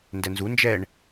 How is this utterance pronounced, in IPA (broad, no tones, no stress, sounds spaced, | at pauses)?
n d ɛ n z u n d͡ʒ ɛ ɳ